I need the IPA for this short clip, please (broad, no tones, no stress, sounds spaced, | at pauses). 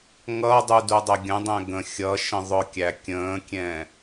ŋ ʌ dˤ u d u dˤ ə ɡʲ ə̃ dˤ ɛ̃ ɡ ə̃ xʲ ʌ ʃ ə̃ ðˤ ʊ kʲ æ kʲ ə̃ː kʲ ɛ̃